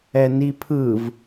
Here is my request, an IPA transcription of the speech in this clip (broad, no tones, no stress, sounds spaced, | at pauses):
ɛ n i pʰ ɯ v